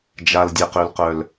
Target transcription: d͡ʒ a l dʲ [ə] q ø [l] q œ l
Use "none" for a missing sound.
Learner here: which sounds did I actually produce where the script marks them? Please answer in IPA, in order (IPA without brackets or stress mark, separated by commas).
ɛ, l